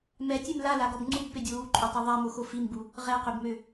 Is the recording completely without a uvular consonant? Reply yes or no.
no